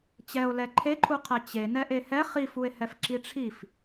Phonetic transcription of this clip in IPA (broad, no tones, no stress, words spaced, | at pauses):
t͡ɕɛo̯lɛ ǃʰeǃʰuqʰɛ t͡ɕe nɛʔehɛ χifue̯hɛf ǁiʈ͡ʂʰif